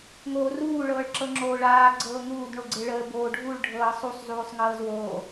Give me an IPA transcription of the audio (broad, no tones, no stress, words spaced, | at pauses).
ŋoːruː ɭɤːɭǁɤŋ͡ǁoːɭaː ɡ͡ǀɤːŋuːd ɳoɡ͡ǀeɭəː boːɖʱuɭ ɖʱɤːsˤusˤ zuːsˤŋɤːzwoː